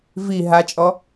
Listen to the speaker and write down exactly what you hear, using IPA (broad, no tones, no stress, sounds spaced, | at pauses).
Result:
v i ɦ a t͡ʃʼ ɔ